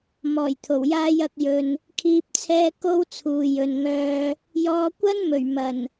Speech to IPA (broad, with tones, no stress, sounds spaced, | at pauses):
m ɔː˨˩ j t̪ʰ o˨˩ w j aː˧ j ɐ˧ k̚ j ɵ˨ n | kʰ iː˨ p̚ t͡sʰ ɛː˧ k o˥ w t͡sʰ uː˨ j ɵ˨ n ŋ œː˧ | j ɔː˨˧ kʷ ɐ˥ n m ɵ˨˩ ɥ m ɐ˨˩ n